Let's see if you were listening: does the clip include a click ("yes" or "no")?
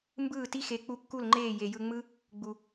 yes